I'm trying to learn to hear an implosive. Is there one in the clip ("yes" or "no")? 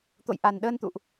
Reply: yes